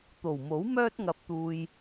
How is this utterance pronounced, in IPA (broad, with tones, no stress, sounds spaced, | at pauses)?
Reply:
t̪ o˨˩ w m o˨˥ w m œː˥ t̚ ŋ ɐ˧ p̚ t̪ uː˧ j